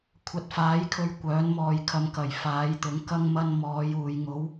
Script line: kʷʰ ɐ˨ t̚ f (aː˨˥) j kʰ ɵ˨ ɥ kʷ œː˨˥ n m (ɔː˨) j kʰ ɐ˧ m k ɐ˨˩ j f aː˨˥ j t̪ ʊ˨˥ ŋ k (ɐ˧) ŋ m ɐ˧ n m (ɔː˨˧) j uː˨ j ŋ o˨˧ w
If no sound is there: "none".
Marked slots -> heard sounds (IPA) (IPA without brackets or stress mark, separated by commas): aː˨˥, ɔː˨, ɐ˧, ɔː˨˧